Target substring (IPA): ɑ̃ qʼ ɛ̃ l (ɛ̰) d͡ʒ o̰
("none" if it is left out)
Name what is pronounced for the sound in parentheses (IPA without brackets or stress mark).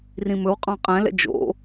ɛ̰